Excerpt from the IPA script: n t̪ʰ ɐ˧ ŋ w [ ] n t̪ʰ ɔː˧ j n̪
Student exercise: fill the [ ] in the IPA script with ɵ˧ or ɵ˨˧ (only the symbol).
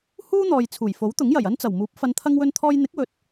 ɵ˧